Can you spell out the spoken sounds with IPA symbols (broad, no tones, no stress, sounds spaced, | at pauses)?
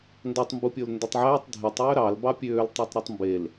n d ɑ tˤ m b u pʲ o l n d o tˤ ʕ æː tˤ dʱ e tˤ øː ɾ ɑ l b ɑ pʲ øː l tˤ e tˤ ɾ u tˤ m b e l